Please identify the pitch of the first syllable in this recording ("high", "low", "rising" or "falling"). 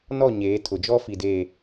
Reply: falling